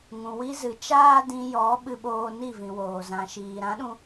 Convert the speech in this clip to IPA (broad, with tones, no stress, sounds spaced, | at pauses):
ŋ ũ˨ w i˧ z ɨ˨ t͡ʃ aː˦ d ĩ˧ j ɔ˨˦ ɓ ɨ˧ ɓ oː˧ n i˦˨ v ĩ˨ w oː˨ z ã˨ ʃ iː˨ ɾ ã˨˦ ɗ ũ˧